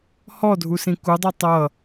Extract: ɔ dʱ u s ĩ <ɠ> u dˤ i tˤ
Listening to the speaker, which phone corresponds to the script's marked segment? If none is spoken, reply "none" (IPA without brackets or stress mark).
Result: k